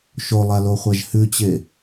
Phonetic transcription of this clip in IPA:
ʃ o lˠ a l o χʷ a ʒ h ʉ t͡ɕ e

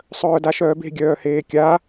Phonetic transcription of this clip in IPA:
sˤ œː d a ʃ œː b e̤ ɡʲ œː h eː kʲ a

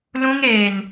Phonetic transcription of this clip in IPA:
l ũ˧ ŋ eː˨ n

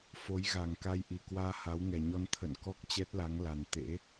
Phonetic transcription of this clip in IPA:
f o˨˦ j ɣ a˨˩ ŋ k a˧ j ʔ i˨˩ k w aː˧ h a˨˦ w ŋ ɛ˨˩ ɲ ɔ˧ n t̪ʰ ə̰˧˨ n k ɔ˦˥ k̚ t͡ɕ ɛ˦˥ t̚ l a˨˦ ŋ l a˨˩ n t̪ ḛ˧˥

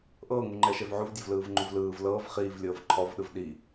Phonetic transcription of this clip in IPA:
ʔ ɤː ŋ u ŋ͡ǃ ɛ ʃ ɛ v ʕ u v dʲ ɔ v l ɯː v ŋ͡ǃ u v l ɯː v l ɤː v χ iː v lʲ ɤː v ǃʰ ɔ v ɗ ɯ v ɗ i

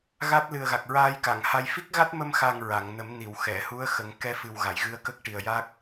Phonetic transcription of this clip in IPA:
ɣ a˦˥ t̚ l ɨ˨˩ ə̯ ɣ a˨˩ k̚ ɹ aː˧ j k a˨˩˨ ŋ h a˧ j f i˦˥ k̚ ɣ a˦˥ t̚ m ə˧ m x a˨˩ ŋ ɹ a˨˩˨ ŋ n ə˨˩˦ m n i˨˩˨ w x ɛ˨˩˨ h u˧˥ ə̯ x ə˨˩˦ ŋ k ɛ˧ f ɨ˨˩ w ɣ a˨˩˨ j ɣ ɨ˧˥ ə̯ k ə˦˥ k̚ ʈ i˨˩ ə̯ j a˦˥ k̚

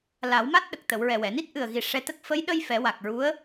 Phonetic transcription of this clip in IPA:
l a˨˩˦ w m a˦˥ t̚ ɗ ə˨˩ k̚ t̪ ə˨˩˨ w ɹ ɛ˨˩ w ɛ˨˩˨ n i˦˥ t̚ ʔ ɨ˨˩ ə̯ ɣ i˨˩ ʂ ɛ˧ t̪ ə˦˥ k̚ f ə˧˥ j ɗ ə˧ j f ɛ˨˩˦ w a˨˩ k̚ ɹ u˧˥ ə̯

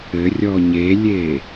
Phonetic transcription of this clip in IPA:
ɘ rʲ ɔ ɲ e lʲ eː

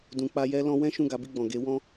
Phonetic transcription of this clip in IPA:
d ũ˨ k͡p a˧ j ɛ˦ l ɔ̃˧ w ɛ̃˦ ʃ ũ˦˨ ɡ a˨˦ b i˦˨ ɡ͡b ɔ̃˨ ɡ e˨˦ w ɔ̃˦

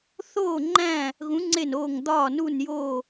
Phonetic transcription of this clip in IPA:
θ oː˦˨ ŋ͡ǃ æ̃˦˨ | ɣ ũ˧˥ ŋ͡ǀ e˦˨ n oː˦˨ ŋ d̪ ɒː˦˨ n u˦˨ n j oː˦˨

